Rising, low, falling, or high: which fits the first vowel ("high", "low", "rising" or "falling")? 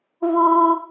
high